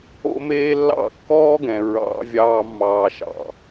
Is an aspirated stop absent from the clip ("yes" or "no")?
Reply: yes